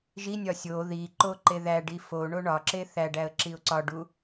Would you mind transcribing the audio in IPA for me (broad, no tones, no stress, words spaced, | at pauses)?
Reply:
ʒinʲɒ sʲo ði ǃoǃeðæɖi foɳo ɳɒǁe θæɖæə̯ ǁiʊ̯ǀɒɖu